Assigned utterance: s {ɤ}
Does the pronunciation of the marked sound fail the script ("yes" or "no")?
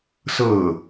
yes